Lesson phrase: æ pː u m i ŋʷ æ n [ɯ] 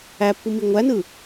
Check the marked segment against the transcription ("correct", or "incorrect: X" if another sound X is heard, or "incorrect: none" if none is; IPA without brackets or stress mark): correct